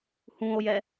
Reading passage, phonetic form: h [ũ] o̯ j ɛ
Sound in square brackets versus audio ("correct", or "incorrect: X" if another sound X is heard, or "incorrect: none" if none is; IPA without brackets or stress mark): correct